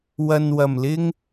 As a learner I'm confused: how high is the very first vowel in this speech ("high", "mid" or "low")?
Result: low